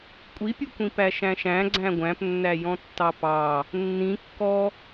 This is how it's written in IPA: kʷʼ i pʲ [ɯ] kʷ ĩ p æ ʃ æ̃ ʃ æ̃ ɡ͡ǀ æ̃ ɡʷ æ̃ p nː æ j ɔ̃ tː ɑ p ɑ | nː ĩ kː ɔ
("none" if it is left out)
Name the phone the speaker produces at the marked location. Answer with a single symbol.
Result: u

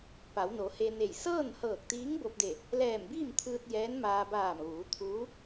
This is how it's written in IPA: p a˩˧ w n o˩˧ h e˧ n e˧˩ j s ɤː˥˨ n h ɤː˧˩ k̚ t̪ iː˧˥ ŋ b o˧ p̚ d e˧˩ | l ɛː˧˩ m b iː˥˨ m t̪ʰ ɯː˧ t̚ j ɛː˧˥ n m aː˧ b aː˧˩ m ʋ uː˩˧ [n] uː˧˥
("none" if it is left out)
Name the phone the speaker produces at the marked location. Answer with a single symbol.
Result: t̪ʰ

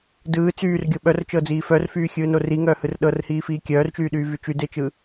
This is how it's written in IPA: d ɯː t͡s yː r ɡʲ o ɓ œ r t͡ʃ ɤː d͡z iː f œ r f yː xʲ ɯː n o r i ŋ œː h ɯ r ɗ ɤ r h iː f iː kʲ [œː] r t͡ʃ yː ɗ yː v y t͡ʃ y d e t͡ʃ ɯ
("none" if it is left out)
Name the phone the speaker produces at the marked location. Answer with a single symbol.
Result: œː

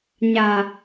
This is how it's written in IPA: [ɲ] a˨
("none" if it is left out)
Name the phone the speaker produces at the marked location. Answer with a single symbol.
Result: ɲ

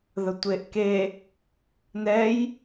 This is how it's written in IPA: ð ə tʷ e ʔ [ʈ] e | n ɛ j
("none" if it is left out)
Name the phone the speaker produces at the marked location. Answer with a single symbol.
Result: k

